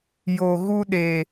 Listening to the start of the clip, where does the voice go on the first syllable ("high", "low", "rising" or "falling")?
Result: low